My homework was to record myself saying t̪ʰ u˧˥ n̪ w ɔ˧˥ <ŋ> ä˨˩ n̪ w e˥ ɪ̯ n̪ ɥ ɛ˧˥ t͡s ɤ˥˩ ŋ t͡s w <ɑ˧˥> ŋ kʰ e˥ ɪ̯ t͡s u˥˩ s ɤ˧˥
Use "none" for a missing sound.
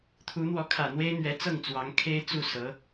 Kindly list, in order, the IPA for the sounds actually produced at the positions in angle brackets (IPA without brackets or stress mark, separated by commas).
kʰ, ɑ˧˥